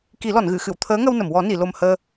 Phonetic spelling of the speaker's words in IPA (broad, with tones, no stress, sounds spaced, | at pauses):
k i˨˩˦ l ɔ˨˩˨ n ɣ ɨ˨˩˨ x ɨ˨˩˨ w t̪ʰ əː˧˥ ŋ ə˧ w n ə˨˩˨ m w ɔ˨˩˦ n i˨˩˨ l o˨˩ m h əː˧